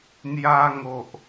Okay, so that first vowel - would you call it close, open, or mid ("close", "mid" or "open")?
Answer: open